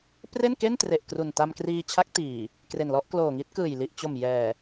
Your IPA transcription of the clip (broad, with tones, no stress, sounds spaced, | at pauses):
p r e˥˩ n k e˥˩ n t r e˨˩ ʔ k r u˨˩ n t a˧ m k r iː˧ t͡ɕʰ a˦˥ k̚ t iː˨˩ | k r e˨˩ n l ɔ˥˩ ʔ k l oː˨˩ ŋ i˦˥ t̚ k ɯː˨˩ j l i˨˩ ʔ t͡ɕ o˨˩ m j ɛː˨˩